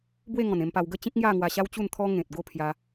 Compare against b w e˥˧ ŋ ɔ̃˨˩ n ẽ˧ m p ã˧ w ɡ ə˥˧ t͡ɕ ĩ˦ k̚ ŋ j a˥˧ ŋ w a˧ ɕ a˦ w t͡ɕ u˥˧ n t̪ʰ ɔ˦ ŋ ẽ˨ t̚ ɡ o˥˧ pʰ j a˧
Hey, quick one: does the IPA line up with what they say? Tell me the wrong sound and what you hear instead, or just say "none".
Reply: ã˧ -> a˧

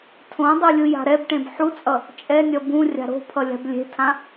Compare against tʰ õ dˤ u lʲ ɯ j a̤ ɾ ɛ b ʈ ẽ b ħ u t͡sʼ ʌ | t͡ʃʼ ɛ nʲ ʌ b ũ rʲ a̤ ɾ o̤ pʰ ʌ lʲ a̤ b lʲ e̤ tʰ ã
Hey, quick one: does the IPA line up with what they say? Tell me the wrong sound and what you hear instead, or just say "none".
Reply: none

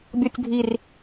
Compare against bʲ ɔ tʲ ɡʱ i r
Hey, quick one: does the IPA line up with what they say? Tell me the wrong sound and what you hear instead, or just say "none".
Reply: none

